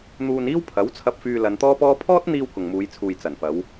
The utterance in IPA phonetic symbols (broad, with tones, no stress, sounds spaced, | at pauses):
n̪ uː˧ n iː˥ w pʰ ɐ˨˥ w t͡sʰ ɐ˧ p̚ f yː˧ l ɐ˨˧ n t̪ ɔː˥ p ɔː˥ pʰ ɔː˥ t̚ n̪ iː˧ w k ʊ˨ ŋ m uː˨˧ j t͡sʰ uː˨ j t͡s ɐ˨˩ n f ɐ˨˧ w